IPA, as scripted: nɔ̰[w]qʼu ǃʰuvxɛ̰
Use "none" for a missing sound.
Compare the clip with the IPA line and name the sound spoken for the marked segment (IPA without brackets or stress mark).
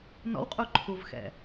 w